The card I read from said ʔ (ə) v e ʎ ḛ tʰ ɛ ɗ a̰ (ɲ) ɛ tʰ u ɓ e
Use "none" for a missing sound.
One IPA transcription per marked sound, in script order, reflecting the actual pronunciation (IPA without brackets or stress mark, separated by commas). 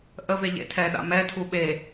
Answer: ə, m